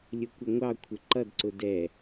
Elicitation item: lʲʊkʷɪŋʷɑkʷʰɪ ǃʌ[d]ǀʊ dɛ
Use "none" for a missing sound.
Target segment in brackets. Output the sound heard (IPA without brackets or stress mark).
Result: d